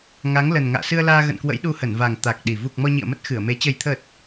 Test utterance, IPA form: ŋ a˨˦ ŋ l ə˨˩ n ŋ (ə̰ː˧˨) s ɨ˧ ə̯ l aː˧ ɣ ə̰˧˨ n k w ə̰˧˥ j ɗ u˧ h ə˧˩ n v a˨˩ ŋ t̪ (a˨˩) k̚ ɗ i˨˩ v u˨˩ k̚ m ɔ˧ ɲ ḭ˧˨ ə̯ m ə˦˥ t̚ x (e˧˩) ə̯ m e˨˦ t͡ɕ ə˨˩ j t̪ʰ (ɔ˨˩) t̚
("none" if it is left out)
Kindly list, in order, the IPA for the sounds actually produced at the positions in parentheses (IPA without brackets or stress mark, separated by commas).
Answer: a̰ː˧˨, a˨˩, ɨ˧˩, ə˨˩